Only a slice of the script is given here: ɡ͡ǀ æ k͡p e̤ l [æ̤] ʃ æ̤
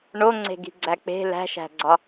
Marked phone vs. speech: correct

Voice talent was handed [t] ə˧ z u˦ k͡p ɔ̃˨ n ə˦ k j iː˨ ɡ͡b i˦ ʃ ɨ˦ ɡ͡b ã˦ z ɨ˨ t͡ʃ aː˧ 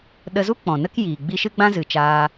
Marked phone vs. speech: incorrect: ɗ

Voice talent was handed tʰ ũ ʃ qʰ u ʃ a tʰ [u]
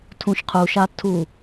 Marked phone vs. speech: correct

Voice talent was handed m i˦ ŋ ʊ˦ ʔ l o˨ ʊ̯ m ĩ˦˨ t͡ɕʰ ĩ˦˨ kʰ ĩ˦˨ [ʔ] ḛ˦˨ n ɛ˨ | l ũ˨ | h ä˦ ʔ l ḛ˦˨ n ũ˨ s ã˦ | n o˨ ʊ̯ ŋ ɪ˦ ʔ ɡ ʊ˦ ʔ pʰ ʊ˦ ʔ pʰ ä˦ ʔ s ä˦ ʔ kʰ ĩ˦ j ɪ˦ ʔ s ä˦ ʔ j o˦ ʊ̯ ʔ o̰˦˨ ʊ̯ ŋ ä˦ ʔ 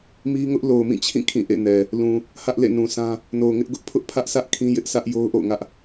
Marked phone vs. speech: correct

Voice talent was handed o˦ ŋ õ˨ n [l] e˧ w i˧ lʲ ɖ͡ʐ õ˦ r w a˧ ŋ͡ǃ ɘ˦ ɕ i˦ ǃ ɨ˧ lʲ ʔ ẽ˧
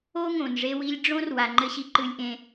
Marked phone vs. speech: incorrect: ʐ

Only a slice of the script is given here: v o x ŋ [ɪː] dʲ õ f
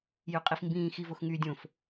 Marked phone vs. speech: incorrect: yː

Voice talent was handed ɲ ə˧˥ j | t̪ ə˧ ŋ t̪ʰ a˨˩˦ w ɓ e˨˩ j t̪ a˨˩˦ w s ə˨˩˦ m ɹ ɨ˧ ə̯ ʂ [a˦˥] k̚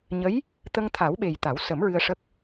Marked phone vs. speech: incorrect: ə˦˥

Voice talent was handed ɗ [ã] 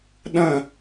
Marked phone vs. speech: incorrect: ɐ̃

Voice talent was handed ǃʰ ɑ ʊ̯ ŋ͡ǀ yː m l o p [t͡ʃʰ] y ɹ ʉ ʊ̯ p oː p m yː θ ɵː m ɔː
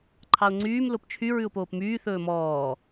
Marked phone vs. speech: correct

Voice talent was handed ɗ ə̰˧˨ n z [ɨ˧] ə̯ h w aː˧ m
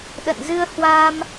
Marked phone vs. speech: correct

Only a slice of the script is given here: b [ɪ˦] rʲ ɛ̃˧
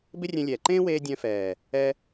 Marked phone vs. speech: correct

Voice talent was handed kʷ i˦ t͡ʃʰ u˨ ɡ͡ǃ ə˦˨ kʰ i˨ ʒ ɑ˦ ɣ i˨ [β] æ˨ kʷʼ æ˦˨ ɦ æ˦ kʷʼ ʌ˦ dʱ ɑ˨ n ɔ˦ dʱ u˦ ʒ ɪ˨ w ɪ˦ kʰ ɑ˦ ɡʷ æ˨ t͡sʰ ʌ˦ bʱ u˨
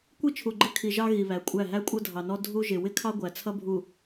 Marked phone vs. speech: correct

